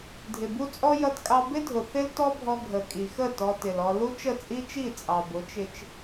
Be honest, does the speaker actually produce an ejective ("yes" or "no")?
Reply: yes